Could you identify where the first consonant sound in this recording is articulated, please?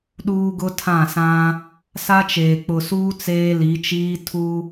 alveolar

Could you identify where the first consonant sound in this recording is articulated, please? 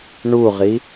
retroflex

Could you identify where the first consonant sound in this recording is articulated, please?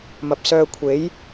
labial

